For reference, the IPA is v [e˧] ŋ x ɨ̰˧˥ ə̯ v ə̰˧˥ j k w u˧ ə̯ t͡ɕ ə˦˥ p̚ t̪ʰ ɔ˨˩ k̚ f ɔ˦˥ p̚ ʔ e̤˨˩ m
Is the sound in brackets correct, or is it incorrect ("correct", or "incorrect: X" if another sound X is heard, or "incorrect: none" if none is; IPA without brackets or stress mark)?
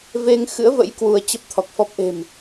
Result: correct